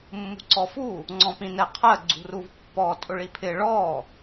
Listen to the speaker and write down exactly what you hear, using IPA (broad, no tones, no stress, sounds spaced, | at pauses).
mː ṳ ǀ ɔ f u | ŋ͡ǀ ɔ̃ p ĩ n ɛ qʰ ɜ ɡ͡ǀ ṳ r u v pː ɔ tʼ ʊ ɭ i pʰ ɪ ɭ ɔ